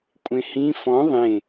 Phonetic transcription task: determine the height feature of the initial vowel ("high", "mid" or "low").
mid